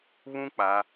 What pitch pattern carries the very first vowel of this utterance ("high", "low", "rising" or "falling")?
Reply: high